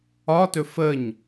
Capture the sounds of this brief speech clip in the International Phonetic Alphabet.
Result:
ɒtɵ fəɲ

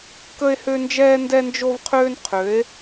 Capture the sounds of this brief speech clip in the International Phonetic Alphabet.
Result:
kə˦e̯hø˦nd͡ʒɛː˦ ndɛ˦nd͡ʒo˦vqʰøː˦n qʰø˨˥e̯

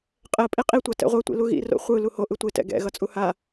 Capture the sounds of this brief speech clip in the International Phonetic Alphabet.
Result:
qʼɛ pʼiqʼitʷa tɛ̰ʁʷɛtʷḭ luɣḭ ro̰χʷɯ luho ʔɯtʷetɛ̰ ɡɛ̰ɣʌ t͡sʼuha

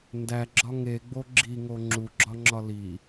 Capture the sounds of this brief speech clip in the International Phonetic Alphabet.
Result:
ndæɡ͡ǁɒ ŋeɡ͡bo ɡ͡ǁiŋo ŋ͡ǁuɡ͡ǁɒŋ͡ǁɒ li

